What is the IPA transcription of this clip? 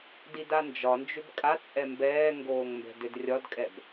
d i d a n d͡ʒ ɒ n d͡ʒ ʏ b kʼ a t͡sʼ ɛ m b ɛː ŋ ɡ oː ŋ m b ɛ̤ d ʏ d rʲ ɒ d kʼ ɛ b

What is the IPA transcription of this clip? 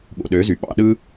ɠ o̰˨ ɗ ø˨˦ z y˨ ɓ ɑ̰˧ ɗ ɯ˧

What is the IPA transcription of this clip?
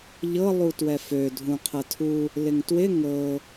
ʎ ɤ lˠ u t w ɛ f ø dʱ ũ qʰ ə tʰ u | l ɪ ŋ t w ɪ ŋ ɤ

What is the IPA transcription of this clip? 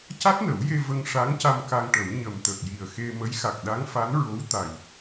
c a˦˥ t̚ n ə˨˩˦ w j e˧ v ə˧ ŋ ʂ a˧˥ ŋ c a˧ m k a˧ ŋ ʈ ə˨˩˦ w ɲ ə˨˩ m t̪ ə˨˩ k̚ j i˨˩ ə̯ x e˧ m ə˧˥ j x a˨˩ k̚ ɗ a˧˥ ŋ f a˧˥ n ɹ o˧˥ w t̪ a˨˩ j

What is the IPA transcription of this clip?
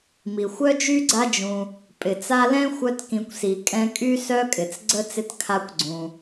m i˩ xʷ œ˥ d͡ʒ y˥ ɡ͡ǀ a˦ d͡ʒ ũ˨ | pʼ ɪ˩ t͡s a˦ l ɛ̃˥ xʷ œ˦ t k ĩ˨ kʷ s i˩ kʼ ɛ̃˦ kʼ y˥ s œ˥ kʼ ɪ˩ t͡s ɡ͡ǀ ə˥ t͡s ɪ˦ t kʰ a˦ kʷ ɡ͡ǀ ũ˩

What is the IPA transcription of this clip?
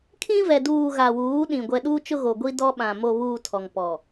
kʰ ĩ˦ v ɛ˨ d uː˨ ɣ a˨ w uː˨˦ ɗ ĩ˨ ɡʷ ɛ˨ ɗ uː˦ t͡ʃ ʊ˦ ɣ o˨ ɡʷ i˦ d ɔ˦ ɓ ã˨ m o˨ β uː˨ tʰ ɔ˨ ŋ p ɔ˨

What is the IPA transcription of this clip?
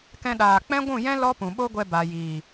k ɛ̃˧ ɗ aː˨ k͡p ɛ̃˦ ɡʷ ũ˦˨ j ɛ̃˦ l ɔ˦ p ũ˨ ɓ o˦ ɡʷ ɛ˧ b a˨ j iː˨

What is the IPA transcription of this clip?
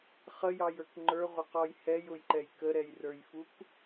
χ ə j ɑ j ə˞ k ŋ͡ǃ ə˞ ʁʷ ɪ q ɔ j h ɛ j ʊ j ǃ ɛ j k ə ɾ ɛ j r ə˞ j f u k

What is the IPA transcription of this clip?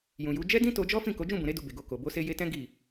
j ũ˨ j u˨˦ d͡ʒ ɛ˦ d ĩ˦ t o˧ d͡ʒ ɔ˦ f ĩ˦˨ k o˨˦ d͡ʒ ũ˦˨ b ũ˨ ɾ e˧ d u˧ b e˨ ɡ o˧ k o˨ b o˧ s e˧ j e˧ t ɛ̃˦ ɡ i˦˨

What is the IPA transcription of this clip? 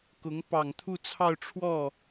k ʊ˧˥ ŋ p ɑ˨˩ ŋ t̪ʰ u˥˧ t͡sʰ ɑ˥˧ ʊ̯ ʈ͡ʂʰ w ɔ˥˩

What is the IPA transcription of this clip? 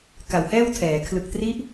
k a˨˩ w h ɛː˥˩ w tʰ ɛː˩˦ kʰ l ɯ˨˩ k̚ t r i˦˥ ʔ

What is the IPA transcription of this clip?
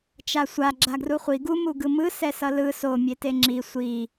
t͡ʃ a sʷ a ɡ͡ǁ a ɡ r u χʷ i ɡ u m u ɡ ɯ m ɯ s ɛ s ʌ l ɯ s o mʲ e t e ŋ͡ǁ i sʷ i

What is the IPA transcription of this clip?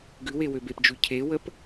ɡ ʉ w e w ø b e p d͡ʒ ʉ cʰ e w ə p

